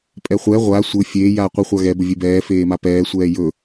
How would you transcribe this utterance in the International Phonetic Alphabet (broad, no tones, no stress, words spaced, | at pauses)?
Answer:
pʼɛχʷɛ ʁʷaː sʷɘ fʲeː jaːqʷə χʷaɣɛ bɘvʲebɛː feːmapɛː sʷɛːjɵ